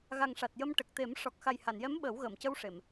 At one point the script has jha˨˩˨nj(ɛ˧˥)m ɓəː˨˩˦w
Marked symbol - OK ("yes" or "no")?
yes